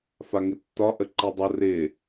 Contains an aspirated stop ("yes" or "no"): no